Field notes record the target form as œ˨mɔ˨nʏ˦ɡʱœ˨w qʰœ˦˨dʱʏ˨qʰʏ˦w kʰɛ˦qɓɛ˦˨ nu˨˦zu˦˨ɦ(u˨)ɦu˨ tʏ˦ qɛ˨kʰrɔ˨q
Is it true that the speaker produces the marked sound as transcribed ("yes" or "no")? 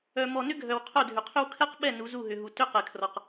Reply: no